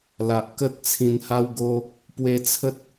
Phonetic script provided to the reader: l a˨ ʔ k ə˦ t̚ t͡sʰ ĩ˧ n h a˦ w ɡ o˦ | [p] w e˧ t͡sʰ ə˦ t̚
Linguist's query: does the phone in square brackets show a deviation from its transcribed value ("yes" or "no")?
no